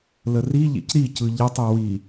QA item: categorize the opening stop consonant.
plain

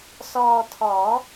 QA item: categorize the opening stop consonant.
aspirated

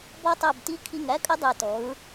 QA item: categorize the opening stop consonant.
plain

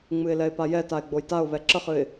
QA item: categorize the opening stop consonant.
plain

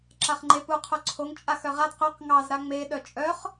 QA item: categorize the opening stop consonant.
click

